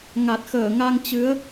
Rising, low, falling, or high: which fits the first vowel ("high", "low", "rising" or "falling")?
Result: low